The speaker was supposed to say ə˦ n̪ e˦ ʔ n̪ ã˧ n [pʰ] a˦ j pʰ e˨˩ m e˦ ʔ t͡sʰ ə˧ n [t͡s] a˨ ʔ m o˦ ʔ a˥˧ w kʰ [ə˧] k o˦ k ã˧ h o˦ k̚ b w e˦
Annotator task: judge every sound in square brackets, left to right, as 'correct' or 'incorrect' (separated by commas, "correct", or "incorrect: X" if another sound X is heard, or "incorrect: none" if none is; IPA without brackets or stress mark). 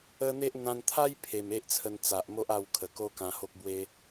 incorrect: t̪ʰ, correct, incorrect: ə˨˩